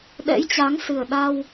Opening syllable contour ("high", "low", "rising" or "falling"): rising